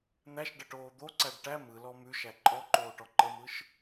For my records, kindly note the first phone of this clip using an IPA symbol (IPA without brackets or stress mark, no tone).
n̪